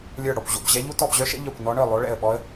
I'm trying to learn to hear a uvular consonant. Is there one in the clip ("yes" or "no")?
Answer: no